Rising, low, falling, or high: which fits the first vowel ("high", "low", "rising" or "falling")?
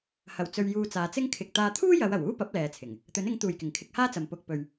low